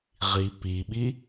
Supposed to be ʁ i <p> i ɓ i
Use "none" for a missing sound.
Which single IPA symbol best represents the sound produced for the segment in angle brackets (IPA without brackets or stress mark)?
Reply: p